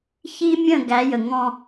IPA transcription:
çi˦mʲə̃˦˨ ɡæ˨˦jə˨ŋɔ̃˦

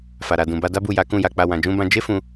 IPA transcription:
fa˨ɾa˨dũ˨ ba˧da˦bu˦˨ja˨˦ kũ˦˨ja˧k͡pa˧ wã˨d͡ʒũ˧bã˧ d͡ʒe˦fũ˧

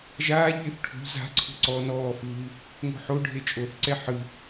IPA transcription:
ʒaːʎlʲɯθ ʈʰṳʎ za̤ ǀʰṳǀɔ nɔːfɯː | ŋo̤ħoɖʱe t͡ʃʼoθǀɛ ħɯ

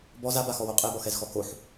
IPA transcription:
bɔz abaxɔwo qʼebɔxɛzxɔ koħ

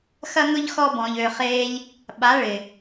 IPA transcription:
xɐ˦ŋʊ˦ʎ xɔ˦bɔ̃˨ʎ ø˨χeː˧ʎ | ɓa˨˦ɭɪ˨

